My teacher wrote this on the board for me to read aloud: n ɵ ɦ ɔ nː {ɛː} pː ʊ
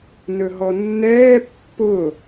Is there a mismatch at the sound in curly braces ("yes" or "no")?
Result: no